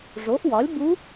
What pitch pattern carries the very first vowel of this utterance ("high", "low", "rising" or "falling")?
rising